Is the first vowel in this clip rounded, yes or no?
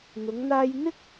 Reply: yes